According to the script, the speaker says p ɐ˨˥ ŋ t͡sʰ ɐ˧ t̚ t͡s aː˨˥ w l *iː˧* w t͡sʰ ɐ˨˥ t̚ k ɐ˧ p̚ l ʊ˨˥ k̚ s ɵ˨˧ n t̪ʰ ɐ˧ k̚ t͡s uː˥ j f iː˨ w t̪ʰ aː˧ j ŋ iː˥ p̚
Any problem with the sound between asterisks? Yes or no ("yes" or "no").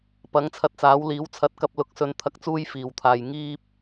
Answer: yes